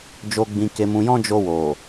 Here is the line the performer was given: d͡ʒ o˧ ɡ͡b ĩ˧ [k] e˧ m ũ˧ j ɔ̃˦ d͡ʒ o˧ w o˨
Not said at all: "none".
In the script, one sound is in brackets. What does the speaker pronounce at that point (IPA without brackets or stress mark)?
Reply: k